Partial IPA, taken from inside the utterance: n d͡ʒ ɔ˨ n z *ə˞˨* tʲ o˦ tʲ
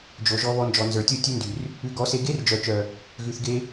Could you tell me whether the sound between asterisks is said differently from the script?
no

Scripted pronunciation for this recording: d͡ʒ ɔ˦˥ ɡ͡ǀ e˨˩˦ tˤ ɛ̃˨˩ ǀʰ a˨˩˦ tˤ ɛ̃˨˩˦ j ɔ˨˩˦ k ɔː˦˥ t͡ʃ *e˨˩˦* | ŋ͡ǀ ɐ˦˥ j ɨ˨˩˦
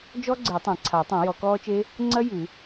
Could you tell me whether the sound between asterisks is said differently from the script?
yes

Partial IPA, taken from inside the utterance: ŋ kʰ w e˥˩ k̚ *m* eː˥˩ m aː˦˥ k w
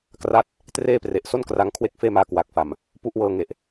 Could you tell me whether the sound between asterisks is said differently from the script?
yes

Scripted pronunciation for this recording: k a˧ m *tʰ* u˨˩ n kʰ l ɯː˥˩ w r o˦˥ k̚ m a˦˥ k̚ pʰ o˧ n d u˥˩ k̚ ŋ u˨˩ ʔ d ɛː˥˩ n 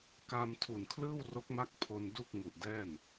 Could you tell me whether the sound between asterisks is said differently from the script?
no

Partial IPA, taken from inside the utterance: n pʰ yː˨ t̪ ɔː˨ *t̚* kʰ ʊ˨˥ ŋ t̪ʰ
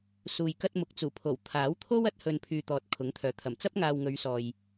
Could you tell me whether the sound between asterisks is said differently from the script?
no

